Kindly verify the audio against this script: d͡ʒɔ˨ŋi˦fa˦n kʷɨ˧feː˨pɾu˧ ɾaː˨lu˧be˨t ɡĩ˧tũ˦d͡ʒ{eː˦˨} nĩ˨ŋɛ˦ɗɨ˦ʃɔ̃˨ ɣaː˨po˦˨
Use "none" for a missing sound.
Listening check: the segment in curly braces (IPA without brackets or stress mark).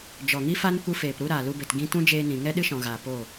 eː˧